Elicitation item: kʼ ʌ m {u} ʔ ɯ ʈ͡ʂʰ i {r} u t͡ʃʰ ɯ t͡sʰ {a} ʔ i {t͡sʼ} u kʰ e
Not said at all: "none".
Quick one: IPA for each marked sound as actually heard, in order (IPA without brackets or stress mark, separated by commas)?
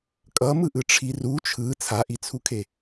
ɯ, r, a, t͡sʰ